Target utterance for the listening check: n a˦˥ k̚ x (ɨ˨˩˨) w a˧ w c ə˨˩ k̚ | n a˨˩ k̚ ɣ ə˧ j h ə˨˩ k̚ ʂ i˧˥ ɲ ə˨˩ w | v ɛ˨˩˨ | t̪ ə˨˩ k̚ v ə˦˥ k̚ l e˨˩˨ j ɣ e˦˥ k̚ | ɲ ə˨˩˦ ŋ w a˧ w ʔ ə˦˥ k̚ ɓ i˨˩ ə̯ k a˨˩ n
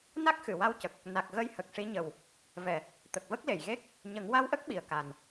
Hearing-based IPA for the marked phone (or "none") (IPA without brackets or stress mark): ɨ˨˩˨